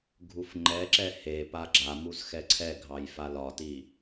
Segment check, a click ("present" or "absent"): present